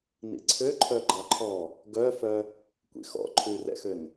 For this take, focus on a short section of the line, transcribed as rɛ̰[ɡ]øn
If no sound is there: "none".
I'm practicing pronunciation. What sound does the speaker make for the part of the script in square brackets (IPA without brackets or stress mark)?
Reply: x